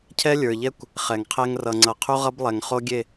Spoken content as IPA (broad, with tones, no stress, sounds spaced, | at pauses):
cʰ ɛ˦ lʲ ə˞˨ ʎ ɛ˦ kʷ | χ ɛ˨ ŋ qʰ ɛ˦ ŋ r ʌ˨ ŋ͡ǀ ʌ˨ qʰ u˦ ʁ ʌ˦ b lˠ ɛ˨ ŋ χ o˦ ɡʲ e˦˨